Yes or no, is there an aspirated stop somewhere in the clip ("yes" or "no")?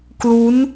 no